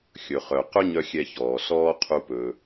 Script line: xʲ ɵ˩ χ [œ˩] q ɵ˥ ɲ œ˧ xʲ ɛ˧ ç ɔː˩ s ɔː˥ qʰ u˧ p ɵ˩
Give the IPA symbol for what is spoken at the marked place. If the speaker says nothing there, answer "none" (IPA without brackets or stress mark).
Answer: œ˩